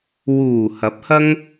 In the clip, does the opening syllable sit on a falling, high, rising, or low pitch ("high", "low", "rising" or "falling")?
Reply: low